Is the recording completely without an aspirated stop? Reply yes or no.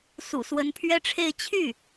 no